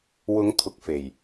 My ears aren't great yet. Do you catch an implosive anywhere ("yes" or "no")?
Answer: no